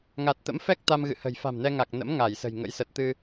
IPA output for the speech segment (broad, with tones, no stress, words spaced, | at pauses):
ŋa˨˩t̚t̪ə̰˧˥mfɛ˦˥k̚ t̪a˧mɣɨ̰˧˨hə̤˨˩j fa̤˨˩mnɛ˧ŋa˨˩k̚nə̰˧˥m ŋa˧˩jsə̤˨˩jŋə̰˧˥j sə˨˩t̚t̪ɨ˧